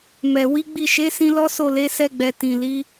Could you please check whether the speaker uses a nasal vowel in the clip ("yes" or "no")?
yes